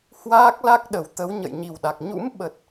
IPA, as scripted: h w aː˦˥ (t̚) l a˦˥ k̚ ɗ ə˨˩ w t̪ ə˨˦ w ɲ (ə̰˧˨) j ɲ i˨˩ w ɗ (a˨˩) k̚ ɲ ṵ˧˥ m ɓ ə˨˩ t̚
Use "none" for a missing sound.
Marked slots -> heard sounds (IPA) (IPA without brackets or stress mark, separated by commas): k̚, ə̰˧˨, a˨˩